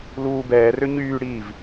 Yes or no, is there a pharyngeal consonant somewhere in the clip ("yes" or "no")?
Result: no